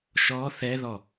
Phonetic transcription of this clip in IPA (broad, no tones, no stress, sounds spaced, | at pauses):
ʃ ɔ θ ɛ ð ɔ